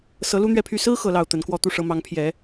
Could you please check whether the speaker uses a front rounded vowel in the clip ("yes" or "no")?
yes